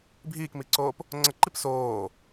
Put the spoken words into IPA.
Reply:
bʱ iː k m i ǀ oː p | ŋ͡ǀ ə ǃ i p s oː

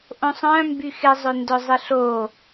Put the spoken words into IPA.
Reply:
ʔ õ sˤ œ̃ m b y x ɪ zˤ ø n d œ zˤ ɪ ɬ o

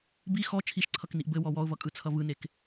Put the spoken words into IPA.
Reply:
b i x ɔ t͡ʃʰ i ʃ ǀʰ ʌ k n i ʔ b ɘ w ɔ w ɔ ʊ̯ v ʌ kʼ ɯ t͡sʰ ʌ v ɯ n e k

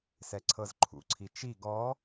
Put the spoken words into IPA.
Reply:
s ɛ ǀʰ ɤ z ǃʰ ṵ ǀʰ i t͡ʃ i ɡ ɔ

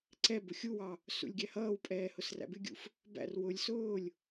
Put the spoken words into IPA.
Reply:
ǀ ɛ b ʊ xʲ u w ɑ | s ṵ lʲ ɡʲ æ h ʌː w pʼ ɛː h ʊ s r æ̰ b ɪ ɡʲ ṵ f | b æ̰ r w ʊ lʲ s ʊː lʲ

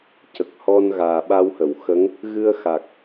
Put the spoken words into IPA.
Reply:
c ə˨˩ k̚ h ɔ˧ n ɣ aː˨˩ ɓ a˧ w h ə˨˩˨ w x ə˧˥ ŋ | ɣ ɨ˧ ə̯ x a˨˩ k̚

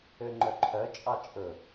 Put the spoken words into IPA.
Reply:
ø ŋ͡ǃ œ ǃʰ œ t͡ʃʼ ɑ t͡ʃʼ ɵ

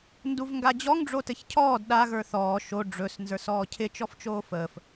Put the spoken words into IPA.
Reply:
n d u v ŋ ɡ a d͡ʑ ɔ ŋ ɖ͡ʐ o t ɘ ç cʰ ɔː d ɗ a ɣ ə˞ θ ɔː ʃ o ɖ͡ʐ ɵ s n z ə˞ s ɔː cʰ ɪ t͡ʃ ɔ f t͡ʃ oː f əː f

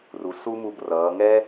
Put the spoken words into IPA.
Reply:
r u˩ s u˥ m u˧ b r ʌː˩˧ ŋ ɛ˥

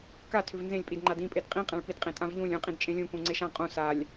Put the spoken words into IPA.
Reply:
k a tʰ ʏ v n z ẽ lʲ pʼ i d ŋ͡ǃ a d ĩ pʼ e d qʼ ĩ qʼ ã ɭ p i d qʼ ẽ tʼ ã v ʎ ũ lʲ ũ qʼ ĩ d t͡ʃʼ ẽ lʲ ũ k ũ ŋ͡ǀ e ʃ ã qʼ ũ s a lʲ

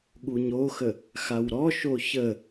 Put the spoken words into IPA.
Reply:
ɠ u ɲ o x ə | x a w ɾ ɔ ʃ o ç ə

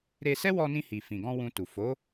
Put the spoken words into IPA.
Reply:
ɾ e˧ s ɛ˦ w ɔ˧ n ĩ˧ h i˨ f ĩ˨ ɡ ɔ̃˧ w ũ˧ t u˨ f o˨˦

